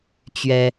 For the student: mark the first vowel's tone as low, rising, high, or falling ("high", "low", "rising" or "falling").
high